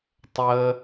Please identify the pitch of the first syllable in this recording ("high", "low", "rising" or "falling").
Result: low